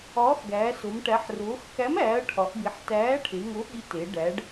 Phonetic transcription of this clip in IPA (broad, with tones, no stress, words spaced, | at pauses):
ɒː˨˥xɡæː˩˧so˩˧m ʈæ˩˧ħroː˩˧xkæ˨˥mæː˩˧ɐ̯ ʈʰɒ˩˧ʔbi˩˧ħ tæː˨˥ʈʰe˩˧ ŋo˨˥ɠi˨˥te˩˧ ɖæ˩˧ɖ